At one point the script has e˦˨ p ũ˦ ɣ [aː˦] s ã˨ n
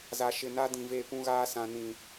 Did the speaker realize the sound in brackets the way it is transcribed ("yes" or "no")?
yes